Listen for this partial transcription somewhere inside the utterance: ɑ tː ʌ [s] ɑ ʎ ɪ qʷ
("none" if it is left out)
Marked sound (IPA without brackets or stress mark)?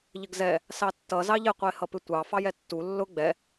z